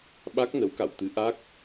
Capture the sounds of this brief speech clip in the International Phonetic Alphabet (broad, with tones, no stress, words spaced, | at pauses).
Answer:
ɓa˦˥k̚nə˨˦wka̰˧˨w t̪ɨ˨˦ʔa˦˥k̚